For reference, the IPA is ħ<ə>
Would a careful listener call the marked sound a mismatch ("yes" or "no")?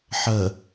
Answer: no